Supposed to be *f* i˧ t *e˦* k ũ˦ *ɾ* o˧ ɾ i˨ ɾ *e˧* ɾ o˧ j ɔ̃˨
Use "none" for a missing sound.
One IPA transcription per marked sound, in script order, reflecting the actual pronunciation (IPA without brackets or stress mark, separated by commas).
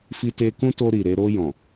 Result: f, e˧, t, e˧